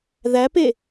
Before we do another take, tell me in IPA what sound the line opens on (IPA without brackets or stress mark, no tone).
ð